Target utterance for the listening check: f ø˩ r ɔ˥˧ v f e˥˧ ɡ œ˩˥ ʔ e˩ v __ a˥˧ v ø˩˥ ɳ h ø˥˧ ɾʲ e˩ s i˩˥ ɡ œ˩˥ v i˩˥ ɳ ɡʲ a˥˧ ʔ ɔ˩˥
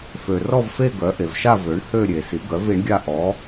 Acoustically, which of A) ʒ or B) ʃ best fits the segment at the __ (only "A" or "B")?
B